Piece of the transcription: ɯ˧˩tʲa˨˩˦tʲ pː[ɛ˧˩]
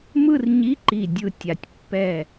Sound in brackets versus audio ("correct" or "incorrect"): correct